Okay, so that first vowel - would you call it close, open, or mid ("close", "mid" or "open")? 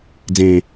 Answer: mid